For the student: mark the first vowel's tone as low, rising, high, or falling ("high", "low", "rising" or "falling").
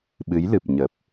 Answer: rising